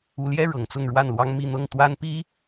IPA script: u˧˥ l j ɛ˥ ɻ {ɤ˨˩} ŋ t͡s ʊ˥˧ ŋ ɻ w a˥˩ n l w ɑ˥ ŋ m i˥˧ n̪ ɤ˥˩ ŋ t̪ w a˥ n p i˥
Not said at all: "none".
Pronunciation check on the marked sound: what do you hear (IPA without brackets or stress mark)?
ɤ˨˩